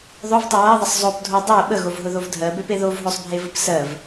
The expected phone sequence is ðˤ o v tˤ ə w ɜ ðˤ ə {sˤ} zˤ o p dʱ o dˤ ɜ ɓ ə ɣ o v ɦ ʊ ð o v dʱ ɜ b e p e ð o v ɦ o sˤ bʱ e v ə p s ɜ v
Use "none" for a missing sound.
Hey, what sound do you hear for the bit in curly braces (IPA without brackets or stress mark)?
sˤ